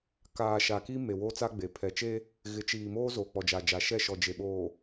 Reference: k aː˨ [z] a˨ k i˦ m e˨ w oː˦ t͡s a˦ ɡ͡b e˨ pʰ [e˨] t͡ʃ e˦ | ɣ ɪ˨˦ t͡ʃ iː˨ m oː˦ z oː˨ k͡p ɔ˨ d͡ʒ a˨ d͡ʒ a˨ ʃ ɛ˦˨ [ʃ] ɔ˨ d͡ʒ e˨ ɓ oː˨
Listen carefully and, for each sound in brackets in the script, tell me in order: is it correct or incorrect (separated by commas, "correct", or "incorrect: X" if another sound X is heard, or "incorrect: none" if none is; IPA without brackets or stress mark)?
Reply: incorrect: ʃ, incorrect: ɛ˨, correct